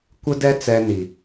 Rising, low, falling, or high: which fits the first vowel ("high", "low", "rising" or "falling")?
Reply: high